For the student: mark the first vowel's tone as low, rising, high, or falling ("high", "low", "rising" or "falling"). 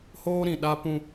high